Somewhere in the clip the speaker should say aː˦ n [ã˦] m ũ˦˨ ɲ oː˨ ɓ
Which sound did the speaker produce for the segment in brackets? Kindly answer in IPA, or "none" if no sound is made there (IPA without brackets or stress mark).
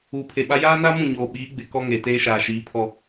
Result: a˦